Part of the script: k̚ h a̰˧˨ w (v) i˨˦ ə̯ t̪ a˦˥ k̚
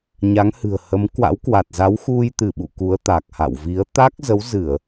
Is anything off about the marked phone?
no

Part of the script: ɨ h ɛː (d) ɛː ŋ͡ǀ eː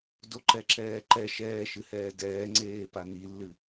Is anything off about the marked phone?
no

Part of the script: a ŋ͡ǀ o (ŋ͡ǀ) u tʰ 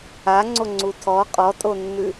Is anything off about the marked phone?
no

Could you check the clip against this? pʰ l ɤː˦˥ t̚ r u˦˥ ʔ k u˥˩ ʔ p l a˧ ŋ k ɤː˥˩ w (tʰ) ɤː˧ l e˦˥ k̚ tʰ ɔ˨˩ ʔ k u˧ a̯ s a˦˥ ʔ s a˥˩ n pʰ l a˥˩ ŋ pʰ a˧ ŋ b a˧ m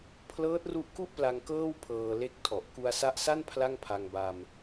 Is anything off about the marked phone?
yes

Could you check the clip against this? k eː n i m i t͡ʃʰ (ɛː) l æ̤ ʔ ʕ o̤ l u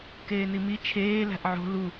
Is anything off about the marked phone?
yes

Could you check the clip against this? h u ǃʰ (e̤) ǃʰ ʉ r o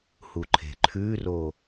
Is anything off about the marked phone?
no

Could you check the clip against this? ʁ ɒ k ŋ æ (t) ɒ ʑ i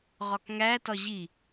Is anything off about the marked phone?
no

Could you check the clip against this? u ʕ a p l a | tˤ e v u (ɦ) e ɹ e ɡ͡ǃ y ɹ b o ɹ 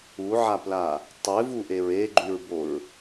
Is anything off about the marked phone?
yes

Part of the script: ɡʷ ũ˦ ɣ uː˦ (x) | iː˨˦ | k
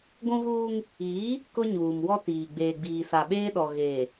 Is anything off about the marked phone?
yes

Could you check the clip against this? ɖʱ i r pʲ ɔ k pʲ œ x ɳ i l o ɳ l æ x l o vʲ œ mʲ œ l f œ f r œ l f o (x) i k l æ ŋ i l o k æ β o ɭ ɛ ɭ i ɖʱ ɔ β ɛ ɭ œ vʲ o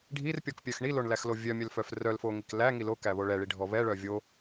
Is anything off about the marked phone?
yes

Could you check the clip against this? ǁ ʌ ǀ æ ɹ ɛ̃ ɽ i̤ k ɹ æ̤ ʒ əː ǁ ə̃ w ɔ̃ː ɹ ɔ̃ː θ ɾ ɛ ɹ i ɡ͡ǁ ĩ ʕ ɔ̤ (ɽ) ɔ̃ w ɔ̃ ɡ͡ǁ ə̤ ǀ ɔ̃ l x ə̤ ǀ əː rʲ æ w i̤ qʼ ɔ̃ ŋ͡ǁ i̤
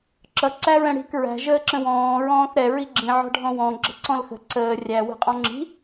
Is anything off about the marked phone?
yes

